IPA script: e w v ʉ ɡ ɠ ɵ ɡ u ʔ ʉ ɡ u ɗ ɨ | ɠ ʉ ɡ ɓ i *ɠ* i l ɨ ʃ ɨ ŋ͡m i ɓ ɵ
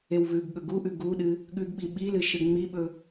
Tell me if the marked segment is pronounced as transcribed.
no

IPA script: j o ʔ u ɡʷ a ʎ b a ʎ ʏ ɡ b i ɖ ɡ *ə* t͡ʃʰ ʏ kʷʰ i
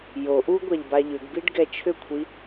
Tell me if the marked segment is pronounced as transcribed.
no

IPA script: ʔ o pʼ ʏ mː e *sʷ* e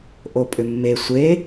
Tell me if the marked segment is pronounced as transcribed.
yes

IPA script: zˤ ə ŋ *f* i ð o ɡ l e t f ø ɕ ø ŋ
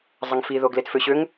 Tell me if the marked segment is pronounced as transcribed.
yes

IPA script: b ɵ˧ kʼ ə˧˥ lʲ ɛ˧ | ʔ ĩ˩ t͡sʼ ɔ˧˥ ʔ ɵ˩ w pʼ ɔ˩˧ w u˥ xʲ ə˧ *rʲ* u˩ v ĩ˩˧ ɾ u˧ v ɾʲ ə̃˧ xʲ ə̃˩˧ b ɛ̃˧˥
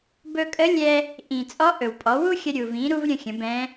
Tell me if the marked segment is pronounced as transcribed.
no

